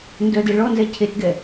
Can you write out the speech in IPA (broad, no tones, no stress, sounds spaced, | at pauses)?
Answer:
n d œ d e ɭ ɔ n z ɛ cʰ e t ɡ ɛ